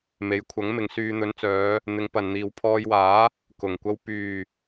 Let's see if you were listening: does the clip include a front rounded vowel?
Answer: yes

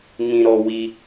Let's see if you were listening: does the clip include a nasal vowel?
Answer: yes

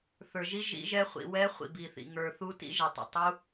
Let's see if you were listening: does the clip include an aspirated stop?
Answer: no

